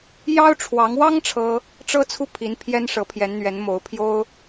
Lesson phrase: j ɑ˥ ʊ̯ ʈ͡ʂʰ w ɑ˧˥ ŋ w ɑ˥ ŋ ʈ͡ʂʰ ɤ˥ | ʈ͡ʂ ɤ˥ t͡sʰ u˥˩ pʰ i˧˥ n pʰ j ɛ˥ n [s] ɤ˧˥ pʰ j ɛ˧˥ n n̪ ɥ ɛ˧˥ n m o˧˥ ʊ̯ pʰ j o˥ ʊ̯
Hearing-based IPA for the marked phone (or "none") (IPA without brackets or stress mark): ʂ